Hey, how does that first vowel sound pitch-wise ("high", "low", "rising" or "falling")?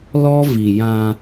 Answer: high